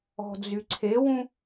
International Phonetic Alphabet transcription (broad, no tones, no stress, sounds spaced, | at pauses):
ɔ̤ d͡z y ǀʰ e w ũ